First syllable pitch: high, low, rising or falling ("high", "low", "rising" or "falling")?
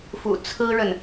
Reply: low